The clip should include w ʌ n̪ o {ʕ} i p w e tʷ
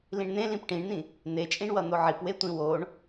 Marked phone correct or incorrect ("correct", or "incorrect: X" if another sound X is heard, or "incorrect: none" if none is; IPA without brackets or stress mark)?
correct